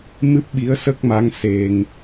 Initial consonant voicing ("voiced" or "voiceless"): voiced